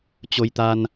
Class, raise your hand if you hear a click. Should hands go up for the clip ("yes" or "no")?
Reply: no